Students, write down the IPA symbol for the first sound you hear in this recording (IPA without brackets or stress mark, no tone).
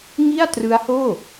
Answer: ŋ